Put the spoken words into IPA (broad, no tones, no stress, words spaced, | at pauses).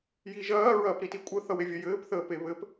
jiʒɐː ɹɐːpɾitikʷʼə θʌwevʲɐjɘːp θəːpeβɘp